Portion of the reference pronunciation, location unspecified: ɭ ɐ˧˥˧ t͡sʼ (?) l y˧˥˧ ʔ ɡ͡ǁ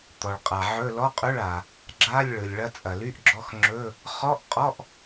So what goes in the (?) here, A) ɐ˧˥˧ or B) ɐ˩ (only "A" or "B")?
B